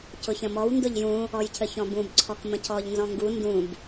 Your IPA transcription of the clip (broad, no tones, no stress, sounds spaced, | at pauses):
c ʊ ç ə̃ m ɔ w n d ʊ ʎ j ũ | ɔ j cʰ ə ç ɔ̃ b ũ b ǀʰ ɔ k m ə̃ cʰ ɔ ʎ n z ɔ̃ ŋ ɡ u n d ũ b